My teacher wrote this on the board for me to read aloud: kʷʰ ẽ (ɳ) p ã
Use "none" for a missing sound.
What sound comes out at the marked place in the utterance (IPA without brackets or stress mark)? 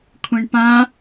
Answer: ɳ